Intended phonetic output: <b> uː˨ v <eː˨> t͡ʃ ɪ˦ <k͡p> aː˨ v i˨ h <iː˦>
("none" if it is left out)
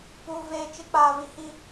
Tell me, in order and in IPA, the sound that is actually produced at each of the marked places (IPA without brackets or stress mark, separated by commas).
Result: p, eː˨, k͡p, i˦